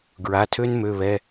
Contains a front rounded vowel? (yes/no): yes